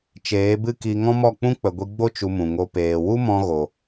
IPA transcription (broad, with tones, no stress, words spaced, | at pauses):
t͡ʃeː˨˦bɨ˦ki˧ ŋɔ̃˦mɔ˦˨k͡pũ˦ k͡pə˨ɡʷi˧ɡ͡bo˦ t͡ʃu˧mũ˨ŋo˧ peː˨wu˦ mɔ̃˧ ɣo˨